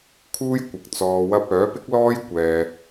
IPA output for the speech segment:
kʰ uː˥ j kʷ ɪ˨ k̚ t͡s ɔː˧ w ɐ˥ p̚ œː˨˥ p ɪ˥ k̚ l ɔː˥ j kʷ ɛː˧

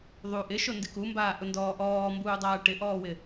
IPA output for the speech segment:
ðˤ u ʔ ɪ ʃ o n d ɪ k u m b aː ʔ ʊ n d ɔː ʔ ɔː m b uː dˤ aː ʈ ɪ ʔ ɔː w ɪ

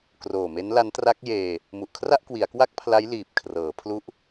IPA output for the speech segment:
k r oː˨˩ m e˦˥ n l a˦˥ n t r a˦˥ k̚ j eː˧ | m u˨˩ ʔ kʰ r a˥˩ ʔ k w i˩˦ a̯ k w a˥˩ k̚ pʰ l a˦˥ j l iː˨˩ p̚ kʰ r ɤː˩˦ pʰ l u˦˥ ʔ

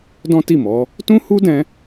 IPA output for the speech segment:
d ɔ̃˦ t i˦˨ m ɔ˨˦ | t ũ˦ h u˦ d ɛ̃˧

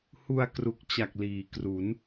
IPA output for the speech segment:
h u˧ a̯ k r u˨˩ k̚ t͡ɕ a˨˩ k̚ l iː˩˦ k r u˩˦ n

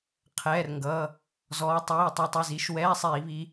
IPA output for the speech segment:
qʰ ɛː˩˧˩ r ŋ ɡ ʌː˩˧˩ | z ɔː˨˦ tˤ iː˩˧˩ tˤ i˨˦ tˤ i˩˧˩ z i˩˧˩ ʃ w ɛː˧˥˧ sˤ iː˧˩˧ β iː˨˦

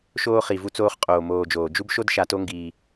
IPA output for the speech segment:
ʃ oː˧ χ i˨ v u˧ t͡s oː˧ χ qʼ oː˨ m oː˨ d͡ʒ oː˨ d͡ʒ u˦ b ʃ o˦ d ʃ a˧ t o˦ ŋ ɡ iː˧

